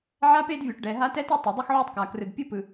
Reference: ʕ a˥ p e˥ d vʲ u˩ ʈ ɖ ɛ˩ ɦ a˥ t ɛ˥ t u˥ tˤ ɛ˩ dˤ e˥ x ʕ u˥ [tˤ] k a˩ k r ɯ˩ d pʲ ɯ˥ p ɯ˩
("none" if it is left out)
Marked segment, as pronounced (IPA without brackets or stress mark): tˤ